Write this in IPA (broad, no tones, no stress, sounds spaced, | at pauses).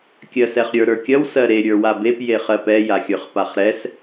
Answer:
kʲ ɜ s ɛ χ ɾʲ ə˞ ɾ ə˞ kʲ ɐ w s ɜ ɾ e ɾʲ ə˞ w a b e p j e χ ɜ p ɛ j a xʲ ə˞ χ p a χ ɾ ɛ s